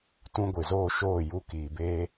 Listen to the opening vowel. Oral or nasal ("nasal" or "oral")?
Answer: nasal